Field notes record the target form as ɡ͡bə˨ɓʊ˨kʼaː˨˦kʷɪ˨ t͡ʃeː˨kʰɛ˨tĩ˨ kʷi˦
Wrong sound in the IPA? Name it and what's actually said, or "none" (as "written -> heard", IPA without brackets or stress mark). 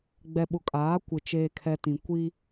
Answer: ə˨ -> ɛ˨